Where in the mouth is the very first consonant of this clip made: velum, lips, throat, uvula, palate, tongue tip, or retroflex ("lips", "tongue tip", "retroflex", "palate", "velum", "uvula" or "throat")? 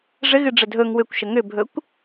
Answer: retroflex